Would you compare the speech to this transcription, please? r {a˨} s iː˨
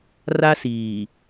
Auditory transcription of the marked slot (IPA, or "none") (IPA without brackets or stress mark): a˦